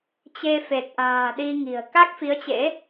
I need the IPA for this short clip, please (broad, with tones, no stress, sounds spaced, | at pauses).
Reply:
t͡ɕ e˧ f e˨˩ k̚ ʔ a̤ː˨˩ ɗ i˧ ŋ i̤˨˩ ə̯ k a˦˥ k̚ f i˨˦ ə̯ t͡ɕ ḛ˧˥